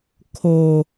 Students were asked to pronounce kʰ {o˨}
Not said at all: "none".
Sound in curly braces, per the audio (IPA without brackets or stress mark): o˨